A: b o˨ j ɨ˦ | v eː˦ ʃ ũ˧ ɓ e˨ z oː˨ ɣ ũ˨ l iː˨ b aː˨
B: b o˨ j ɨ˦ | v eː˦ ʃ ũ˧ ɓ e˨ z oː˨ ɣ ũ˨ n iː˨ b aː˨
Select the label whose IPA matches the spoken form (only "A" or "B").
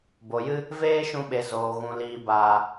A